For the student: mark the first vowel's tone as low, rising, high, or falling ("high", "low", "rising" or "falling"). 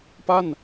falling